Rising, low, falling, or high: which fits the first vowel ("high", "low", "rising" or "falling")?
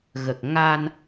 low